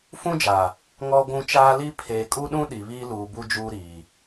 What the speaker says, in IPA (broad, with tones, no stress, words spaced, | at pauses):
fũ˦d͡ʒa˨ | ŋɔ˦ɡʷũ˦ t͡ʃaː˦li˦ pʰeː˨kʼu˦ɗũ˦ ɗi˨βiː˦ luː˨bu˦ d͡ʒuː˦ɾiː˨